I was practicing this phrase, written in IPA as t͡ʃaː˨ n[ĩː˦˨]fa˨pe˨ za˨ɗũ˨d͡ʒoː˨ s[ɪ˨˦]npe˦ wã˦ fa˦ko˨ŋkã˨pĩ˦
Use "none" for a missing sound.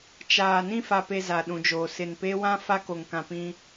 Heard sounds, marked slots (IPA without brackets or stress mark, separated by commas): ĩ˦˨, ɪ˨